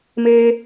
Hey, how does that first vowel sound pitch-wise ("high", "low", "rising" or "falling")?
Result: high